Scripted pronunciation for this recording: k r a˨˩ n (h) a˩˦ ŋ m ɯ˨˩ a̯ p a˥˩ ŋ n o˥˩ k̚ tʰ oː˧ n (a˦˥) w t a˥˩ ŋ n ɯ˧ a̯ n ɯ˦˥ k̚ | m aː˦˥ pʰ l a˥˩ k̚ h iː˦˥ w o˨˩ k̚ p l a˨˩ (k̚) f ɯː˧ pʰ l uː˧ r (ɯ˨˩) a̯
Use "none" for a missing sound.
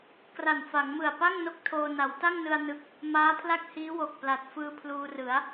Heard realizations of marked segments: f, a˩˦, t̚, ɯ˩˦

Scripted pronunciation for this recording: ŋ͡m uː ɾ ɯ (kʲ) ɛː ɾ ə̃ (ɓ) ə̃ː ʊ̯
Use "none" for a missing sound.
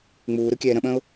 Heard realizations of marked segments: kʲ, ɓ

